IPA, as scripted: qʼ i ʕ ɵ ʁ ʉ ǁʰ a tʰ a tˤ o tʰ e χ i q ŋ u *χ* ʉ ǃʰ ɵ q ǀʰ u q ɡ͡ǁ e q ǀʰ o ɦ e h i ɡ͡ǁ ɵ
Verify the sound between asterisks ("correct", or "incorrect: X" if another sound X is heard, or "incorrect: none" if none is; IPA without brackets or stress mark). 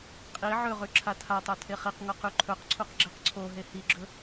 incorrect: q